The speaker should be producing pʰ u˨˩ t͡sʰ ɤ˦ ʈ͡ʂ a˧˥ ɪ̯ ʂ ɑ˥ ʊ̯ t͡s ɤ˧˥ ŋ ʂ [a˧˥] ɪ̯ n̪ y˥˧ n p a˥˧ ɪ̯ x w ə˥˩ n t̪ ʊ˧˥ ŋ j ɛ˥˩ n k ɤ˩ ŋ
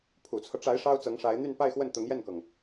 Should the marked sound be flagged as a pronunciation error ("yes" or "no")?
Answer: no